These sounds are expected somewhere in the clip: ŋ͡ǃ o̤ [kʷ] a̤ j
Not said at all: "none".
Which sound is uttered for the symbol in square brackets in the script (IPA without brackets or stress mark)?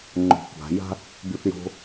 kʷ